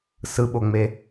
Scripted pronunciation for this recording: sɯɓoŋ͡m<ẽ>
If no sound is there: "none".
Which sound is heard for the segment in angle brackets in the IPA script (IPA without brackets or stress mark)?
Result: e